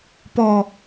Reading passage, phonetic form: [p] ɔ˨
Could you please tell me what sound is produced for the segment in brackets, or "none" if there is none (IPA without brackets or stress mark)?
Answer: p